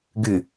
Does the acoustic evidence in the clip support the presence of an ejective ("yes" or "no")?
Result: no